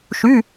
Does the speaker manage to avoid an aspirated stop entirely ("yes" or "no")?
yes